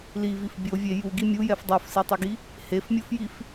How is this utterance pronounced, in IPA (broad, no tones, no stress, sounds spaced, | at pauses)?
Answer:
l i v i f bʲ o vʲ e j u ɡ i mʲ u j ɛ f dˤ o f s i tˤ i ɡ i | h e f mʲ o f j i f